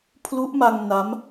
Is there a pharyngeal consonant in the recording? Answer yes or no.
no